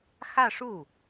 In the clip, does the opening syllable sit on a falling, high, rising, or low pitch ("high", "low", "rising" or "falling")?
falling